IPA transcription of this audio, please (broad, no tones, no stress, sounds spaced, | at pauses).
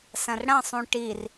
s ɐ̃ r ɽ ɐ̃ sˤ ũ ʈ i r